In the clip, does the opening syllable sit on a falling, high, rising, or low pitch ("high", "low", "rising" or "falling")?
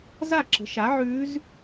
falling